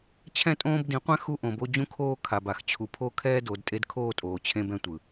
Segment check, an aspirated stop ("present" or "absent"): present